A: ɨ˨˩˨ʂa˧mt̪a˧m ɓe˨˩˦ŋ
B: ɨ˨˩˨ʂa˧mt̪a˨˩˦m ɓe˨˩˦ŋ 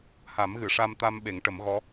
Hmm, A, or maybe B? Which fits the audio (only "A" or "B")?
A